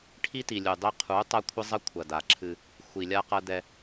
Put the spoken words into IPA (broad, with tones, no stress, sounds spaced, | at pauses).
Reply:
ʈʰ i˦ t i˨ lʲ u˨ dˤ e˦ qʰ u˨˦ tˤ a˦ kʷʰ ɘ˦ zˤ ɐ˦ kʷʰ ɐ˨ d a˨ ǁʰ ɨ˦ | xʷ i˨ lʲ a˦ q ɐ˦ d ɛ˦